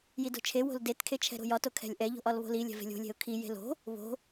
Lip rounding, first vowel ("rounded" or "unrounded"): unrounded